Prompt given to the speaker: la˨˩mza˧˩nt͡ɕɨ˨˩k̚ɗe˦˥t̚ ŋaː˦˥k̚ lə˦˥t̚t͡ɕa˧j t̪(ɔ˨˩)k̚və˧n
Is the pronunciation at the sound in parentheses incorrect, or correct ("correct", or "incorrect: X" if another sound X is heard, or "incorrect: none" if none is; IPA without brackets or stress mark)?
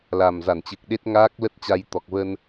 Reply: correct